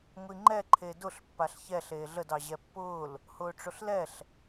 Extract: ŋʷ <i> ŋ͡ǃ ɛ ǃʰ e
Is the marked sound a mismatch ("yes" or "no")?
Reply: no